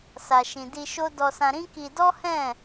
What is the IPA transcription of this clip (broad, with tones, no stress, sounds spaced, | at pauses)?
s a˨ ʃ ĩ˨ d i˧ ʃ o˦ d ɔ˧ s ã˧ ɾ ĩ˦ k i˧ d ɔ˦ h ɛ̃˦˨